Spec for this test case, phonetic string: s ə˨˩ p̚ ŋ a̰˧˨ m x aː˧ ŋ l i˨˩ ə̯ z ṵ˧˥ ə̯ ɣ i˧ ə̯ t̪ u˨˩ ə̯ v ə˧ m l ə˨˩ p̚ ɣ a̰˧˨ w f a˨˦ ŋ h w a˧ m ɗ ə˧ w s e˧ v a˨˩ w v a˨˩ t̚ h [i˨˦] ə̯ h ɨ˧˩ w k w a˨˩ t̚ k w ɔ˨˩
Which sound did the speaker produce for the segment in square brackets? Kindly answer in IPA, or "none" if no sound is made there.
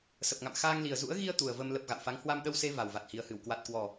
i˨˩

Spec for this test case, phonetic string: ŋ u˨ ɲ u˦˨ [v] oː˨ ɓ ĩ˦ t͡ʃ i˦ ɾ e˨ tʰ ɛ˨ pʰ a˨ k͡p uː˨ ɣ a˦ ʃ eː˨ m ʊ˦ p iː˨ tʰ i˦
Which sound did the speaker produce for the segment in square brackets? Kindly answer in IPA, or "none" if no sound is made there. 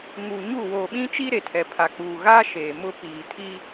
w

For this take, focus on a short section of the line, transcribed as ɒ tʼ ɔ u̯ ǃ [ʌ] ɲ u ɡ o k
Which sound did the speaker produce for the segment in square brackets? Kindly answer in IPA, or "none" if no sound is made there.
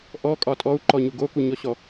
ɔ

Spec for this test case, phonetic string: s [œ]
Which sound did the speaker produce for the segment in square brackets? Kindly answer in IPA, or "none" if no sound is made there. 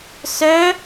œ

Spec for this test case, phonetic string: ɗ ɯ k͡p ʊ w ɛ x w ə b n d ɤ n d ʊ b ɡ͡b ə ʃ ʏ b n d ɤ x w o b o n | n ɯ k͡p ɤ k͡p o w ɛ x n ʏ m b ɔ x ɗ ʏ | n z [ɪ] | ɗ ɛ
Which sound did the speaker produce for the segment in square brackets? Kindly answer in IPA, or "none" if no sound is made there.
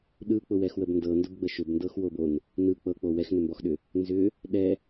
ʏ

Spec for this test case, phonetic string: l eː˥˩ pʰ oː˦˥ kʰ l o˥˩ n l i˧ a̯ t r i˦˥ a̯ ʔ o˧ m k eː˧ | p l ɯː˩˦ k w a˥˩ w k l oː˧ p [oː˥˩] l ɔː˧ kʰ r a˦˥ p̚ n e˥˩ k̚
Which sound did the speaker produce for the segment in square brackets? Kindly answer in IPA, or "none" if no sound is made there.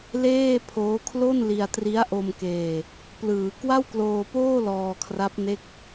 oː˥˩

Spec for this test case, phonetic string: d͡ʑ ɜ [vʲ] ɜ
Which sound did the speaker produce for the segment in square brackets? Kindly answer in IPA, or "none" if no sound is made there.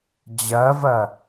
v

